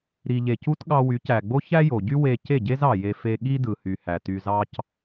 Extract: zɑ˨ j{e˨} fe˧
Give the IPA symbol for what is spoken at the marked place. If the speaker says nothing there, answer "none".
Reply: e˧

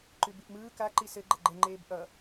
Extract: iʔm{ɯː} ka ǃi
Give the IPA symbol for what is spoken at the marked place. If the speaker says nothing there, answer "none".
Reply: ɯː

